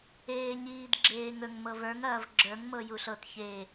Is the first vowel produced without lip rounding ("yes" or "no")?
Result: yes